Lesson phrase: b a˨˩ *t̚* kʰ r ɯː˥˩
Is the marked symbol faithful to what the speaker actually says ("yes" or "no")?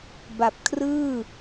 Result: no